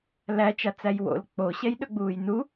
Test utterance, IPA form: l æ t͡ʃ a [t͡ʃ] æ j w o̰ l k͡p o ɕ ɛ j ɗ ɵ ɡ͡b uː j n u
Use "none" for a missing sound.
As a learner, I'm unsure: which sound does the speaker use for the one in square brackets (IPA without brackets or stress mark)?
t͡s